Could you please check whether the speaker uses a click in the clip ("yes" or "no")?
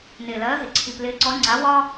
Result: yes